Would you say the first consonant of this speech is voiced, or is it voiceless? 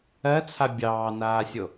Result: voiceless